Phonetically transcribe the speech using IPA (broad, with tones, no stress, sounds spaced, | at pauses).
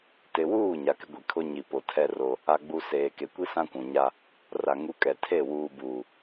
t ɪ˨ w uː˦˨ ɲ a˨ k ɪ˦ ɡʷ i˨ kʰ ʊ˦ ɲ i˨ p o˨ tʰ ɛ˦ r o˦ | a˨ ɡ͡b u˨ s eː˨ k e˨ kʷ i˦ s ã˦ kʷ ũ˨ ɲ a˦ | r a˨ ŋ u˨˦ kʼ ɛ˨ tʰ e˦˨ w uː˨ b uː˨